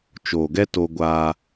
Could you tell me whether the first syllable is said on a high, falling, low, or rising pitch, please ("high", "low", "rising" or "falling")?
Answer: low